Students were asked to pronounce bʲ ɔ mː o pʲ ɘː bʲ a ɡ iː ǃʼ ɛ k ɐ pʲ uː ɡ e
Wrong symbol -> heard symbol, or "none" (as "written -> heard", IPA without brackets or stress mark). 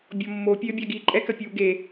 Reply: none